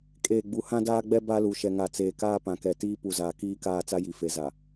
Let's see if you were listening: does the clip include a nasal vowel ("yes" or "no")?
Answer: yes